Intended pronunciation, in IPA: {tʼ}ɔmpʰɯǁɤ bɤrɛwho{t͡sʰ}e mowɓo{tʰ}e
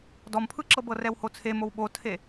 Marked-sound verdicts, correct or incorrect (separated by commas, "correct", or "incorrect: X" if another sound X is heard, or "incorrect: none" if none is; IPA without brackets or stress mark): incorrect: d, correct, correct